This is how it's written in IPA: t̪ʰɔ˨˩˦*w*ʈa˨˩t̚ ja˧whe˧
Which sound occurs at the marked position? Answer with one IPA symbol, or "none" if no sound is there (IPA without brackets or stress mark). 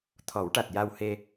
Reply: w